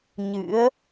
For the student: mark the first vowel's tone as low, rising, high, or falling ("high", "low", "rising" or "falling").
rising